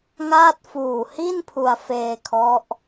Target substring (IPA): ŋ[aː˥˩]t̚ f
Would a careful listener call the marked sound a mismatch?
no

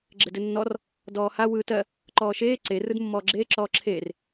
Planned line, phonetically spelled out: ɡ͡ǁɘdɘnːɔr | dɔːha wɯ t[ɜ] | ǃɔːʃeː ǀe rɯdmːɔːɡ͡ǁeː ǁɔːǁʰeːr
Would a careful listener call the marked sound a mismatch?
no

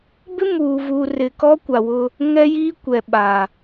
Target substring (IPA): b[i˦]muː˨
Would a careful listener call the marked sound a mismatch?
yes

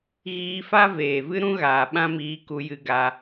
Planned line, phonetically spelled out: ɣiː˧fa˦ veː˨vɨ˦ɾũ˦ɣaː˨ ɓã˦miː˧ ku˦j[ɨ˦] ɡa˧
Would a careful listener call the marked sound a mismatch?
no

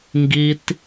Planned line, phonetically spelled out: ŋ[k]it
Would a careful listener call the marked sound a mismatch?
yes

